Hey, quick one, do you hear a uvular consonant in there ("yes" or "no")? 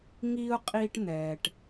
yes